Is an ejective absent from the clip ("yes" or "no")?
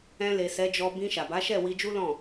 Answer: yes